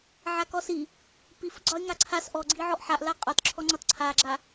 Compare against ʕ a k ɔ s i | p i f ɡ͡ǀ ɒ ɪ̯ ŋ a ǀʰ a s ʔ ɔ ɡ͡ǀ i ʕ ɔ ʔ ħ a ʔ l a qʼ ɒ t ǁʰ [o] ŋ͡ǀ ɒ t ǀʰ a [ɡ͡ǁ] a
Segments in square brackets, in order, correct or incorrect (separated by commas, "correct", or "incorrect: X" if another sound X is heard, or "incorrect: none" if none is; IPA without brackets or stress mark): incorrect: ɔ, correct